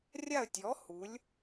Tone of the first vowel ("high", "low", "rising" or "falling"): falling